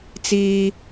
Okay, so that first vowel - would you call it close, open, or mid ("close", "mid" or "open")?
close